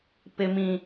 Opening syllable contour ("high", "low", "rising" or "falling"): high